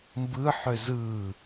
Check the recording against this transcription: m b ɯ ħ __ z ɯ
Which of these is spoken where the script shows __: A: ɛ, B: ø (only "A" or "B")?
B